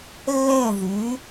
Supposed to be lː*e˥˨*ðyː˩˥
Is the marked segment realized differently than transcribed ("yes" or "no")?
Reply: yes